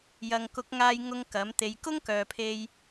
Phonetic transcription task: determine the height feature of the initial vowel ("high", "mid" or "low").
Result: low